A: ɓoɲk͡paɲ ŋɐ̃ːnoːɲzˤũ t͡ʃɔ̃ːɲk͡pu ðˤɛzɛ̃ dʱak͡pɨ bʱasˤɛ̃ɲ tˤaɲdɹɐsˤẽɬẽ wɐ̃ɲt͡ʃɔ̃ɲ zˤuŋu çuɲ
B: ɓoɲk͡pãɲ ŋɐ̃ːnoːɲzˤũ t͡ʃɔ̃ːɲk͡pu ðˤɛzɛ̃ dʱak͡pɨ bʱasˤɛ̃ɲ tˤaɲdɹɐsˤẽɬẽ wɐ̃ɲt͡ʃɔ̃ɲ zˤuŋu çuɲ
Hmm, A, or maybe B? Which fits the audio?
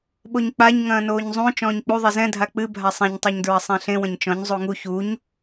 A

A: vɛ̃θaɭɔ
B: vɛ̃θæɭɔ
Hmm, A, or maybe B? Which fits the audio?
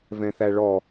B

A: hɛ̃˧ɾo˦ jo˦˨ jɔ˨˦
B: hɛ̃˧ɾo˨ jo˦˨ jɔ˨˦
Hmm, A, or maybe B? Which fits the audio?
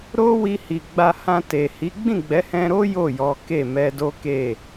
A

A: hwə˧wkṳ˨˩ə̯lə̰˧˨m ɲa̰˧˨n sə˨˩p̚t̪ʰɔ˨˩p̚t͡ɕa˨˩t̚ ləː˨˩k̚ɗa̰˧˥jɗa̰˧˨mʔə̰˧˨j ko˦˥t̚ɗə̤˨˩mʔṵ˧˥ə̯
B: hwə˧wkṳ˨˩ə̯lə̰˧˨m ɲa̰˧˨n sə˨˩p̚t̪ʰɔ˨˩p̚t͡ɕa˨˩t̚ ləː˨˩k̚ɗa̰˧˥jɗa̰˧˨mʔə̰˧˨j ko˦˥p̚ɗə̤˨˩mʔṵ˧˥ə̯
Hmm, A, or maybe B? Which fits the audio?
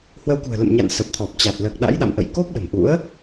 B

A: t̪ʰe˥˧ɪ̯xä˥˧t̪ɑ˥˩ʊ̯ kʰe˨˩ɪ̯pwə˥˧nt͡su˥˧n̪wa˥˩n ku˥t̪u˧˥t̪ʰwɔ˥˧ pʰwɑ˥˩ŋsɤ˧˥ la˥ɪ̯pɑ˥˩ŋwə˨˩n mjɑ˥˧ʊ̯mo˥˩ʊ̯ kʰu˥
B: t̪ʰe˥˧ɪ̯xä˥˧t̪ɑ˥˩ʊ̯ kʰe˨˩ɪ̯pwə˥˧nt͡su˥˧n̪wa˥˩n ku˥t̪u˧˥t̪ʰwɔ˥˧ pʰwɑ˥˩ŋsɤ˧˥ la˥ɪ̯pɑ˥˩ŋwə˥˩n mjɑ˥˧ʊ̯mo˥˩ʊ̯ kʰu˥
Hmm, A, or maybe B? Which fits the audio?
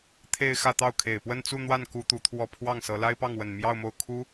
A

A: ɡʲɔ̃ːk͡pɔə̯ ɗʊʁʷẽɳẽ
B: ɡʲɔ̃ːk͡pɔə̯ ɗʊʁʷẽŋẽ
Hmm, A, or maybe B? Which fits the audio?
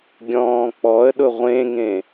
B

